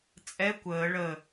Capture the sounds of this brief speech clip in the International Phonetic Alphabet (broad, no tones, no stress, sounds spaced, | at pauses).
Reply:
t͡sʼ ɛ kʷ əː ɭ ə